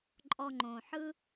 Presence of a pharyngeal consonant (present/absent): present